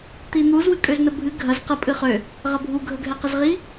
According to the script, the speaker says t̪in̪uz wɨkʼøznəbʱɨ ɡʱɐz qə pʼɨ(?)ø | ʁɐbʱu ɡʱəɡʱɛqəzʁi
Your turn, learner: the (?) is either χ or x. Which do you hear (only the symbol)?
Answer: χ